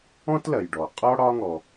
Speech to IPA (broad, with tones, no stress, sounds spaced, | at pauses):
ɔ̃˥ t l ɐ˩ j ɖ ɔ˩ qʼ ɔ˥ ɽ ɒ˥ ŋ ɔ˩